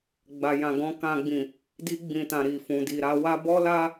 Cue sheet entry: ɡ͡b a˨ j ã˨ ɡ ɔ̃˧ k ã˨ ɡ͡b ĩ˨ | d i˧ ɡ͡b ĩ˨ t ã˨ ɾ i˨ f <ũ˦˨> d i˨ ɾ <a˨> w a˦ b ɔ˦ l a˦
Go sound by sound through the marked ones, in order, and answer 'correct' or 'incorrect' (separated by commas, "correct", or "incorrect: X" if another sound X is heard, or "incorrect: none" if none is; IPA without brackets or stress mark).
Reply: incorrect: ũ˨, incorrect: a˨˦